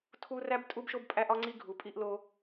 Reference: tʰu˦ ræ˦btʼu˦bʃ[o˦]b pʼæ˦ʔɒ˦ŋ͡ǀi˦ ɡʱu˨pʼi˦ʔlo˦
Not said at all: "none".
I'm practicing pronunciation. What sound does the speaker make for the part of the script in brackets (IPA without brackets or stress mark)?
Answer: o˦